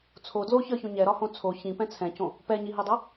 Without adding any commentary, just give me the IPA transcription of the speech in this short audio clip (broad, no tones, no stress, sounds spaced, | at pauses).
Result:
t͡sʰ o d l o ç ə˞ ç õ ɲ ɛ ɾ ɒ h õ t͡sʰ o ç ĩ p ɛ̃ t͡sʰ ɛ̃ c õ | p ɛ ɲ i ɦ i dˤ o